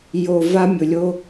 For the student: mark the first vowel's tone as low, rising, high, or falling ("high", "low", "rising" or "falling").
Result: low